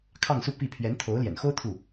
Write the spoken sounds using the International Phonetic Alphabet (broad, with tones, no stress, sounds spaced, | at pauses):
kʰ ɑ˥˧ ŋ s u˥˧ p i˥˩ pʰ ɥ ɛ˧˥ n t̪ʰ o˧˥ ʊ̯ l j ɛ̰˨˩ n x o˥ ʊ̯ t̪ʰ u˥˩